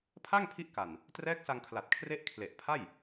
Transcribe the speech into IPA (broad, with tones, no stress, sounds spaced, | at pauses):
pʰ a˥˩ ŋ pʰ i˦˥ ʔ k a˨˩ n | t r ɛː˦˥ k̚ s a˧ ŋ kʰ l a˨˩ t̚ kʰ r e˦˥ ʔ kʰ l e˨˩ ʔ pʰ a˥˩ j